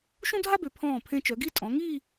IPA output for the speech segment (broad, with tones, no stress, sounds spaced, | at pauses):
ʃ ũ˥ dʱ a˥ b ø˩˧ pʰ ɔ̃ː˧˩ pʰ ẽ˧ t͡ʃ œ˩˧ ɡ i˥˧ tʼ ɔ̃˩˧ ŋ iː˥˧